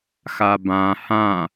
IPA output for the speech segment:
x a b ã h ã

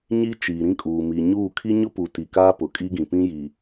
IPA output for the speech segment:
ɲ i˦ t͡ʃ iː˨ ɾ ĩ˦ kʼ uː˨ m iː˨ ɲ uː˦˨ kʰ i˦ ɲ ʊ˦ p u˨ t i˨ k aː˦ p ʊ˨ kʼ i˦ ɡ ĩ˨ p ĩ˦ j i˨

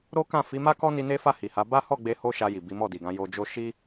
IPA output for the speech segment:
ɾ o˦ k ã˦˨ f i˨˦ m a˦ k ɔ˦ n i˧ n e˦ f a˦˨ h i˨ h a˨˦ b a˦ h ɔ˦˨ ɡ͡b e˧ h o˦ ʃ a˧ j i˨ b i˨˦ m ɔ˦˨ d i˨ ɡ ã˨˦ j o˧ d͡ʒ o˦ ʃ i˦

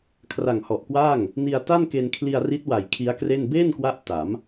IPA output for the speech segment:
kʰ r a˨˩ ŋ h ɔ˨˩ ʔ k w aː˥˩ ŋ | n i˧ a̯ t a˥˩ n k e˧ n kʰ l i˧ a̯ r i˦˥ t̚ w a˨˩ j kʰ i˦˥ a̯ k r e˥˩ n b eː˥˩ n k w a˦˥ ʔ t a˩˦ m

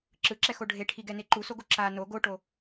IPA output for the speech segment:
ǁ ɯ ǁ ɛ x o ɖʱ e ʈʰ i ɡ ɛ n e ǃ u s o ɡ o ǁ a n o ɡ o ʈ o

